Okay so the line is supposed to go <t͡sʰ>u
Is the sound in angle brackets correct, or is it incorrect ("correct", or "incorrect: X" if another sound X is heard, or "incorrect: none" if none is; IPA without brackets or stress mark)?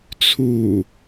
correct